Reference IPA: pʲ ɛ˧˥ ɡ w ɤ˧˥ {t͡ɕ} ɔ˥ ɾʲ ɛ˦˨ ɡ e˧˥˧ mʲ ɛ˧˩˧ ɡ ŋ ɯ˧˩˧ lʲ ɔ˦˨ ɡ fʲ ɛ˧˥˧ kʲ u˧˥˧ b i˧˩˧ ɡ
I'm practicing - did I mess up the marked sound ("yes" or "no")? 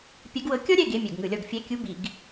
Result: yes